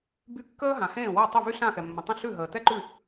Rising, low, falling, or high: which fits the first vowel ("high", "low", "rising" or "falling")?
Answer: high